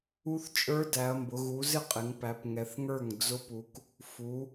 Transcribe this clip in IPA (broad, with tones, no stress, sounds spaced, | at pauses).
u˦˥ θ t͡ʃʼ ə˞˦˥ d æ˩˧ ɐ̯ m b ʊ˩˧ ɣ u˩˧ z ɪ˥˩ qʼ ɪ˩˧ ŋ p æ˩˧ p ŋ ɛ˩˧ θ ŋ ə˞˥˩ ŋ d͡z ʊ˦˥ p u˩˧ k | f u˩˧